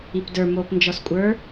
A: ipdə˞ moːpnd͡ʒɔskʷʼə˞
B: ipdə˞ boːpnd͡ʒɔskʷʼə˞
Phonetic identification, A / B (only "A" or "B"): A